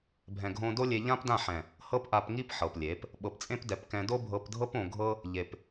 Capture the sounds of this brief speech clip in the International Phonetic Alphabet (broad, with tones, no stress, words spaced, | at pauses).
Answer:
bʱɛ̃˨ɡʱõ˧do˦ lʲe˧ʎã˦pdã˦˨ħɛ̃˨ | hɤ˦pʔa˧pŋi˦p ħɤ˨plʲe˨˦p | ɓɤ˨pt͡sʼẽ˦pdɛ˨˦pkɛ̃˧ do˦bʱɤ˧pdʱɤ˦p õ˧ɡʱɤ˦ | ʎe˨p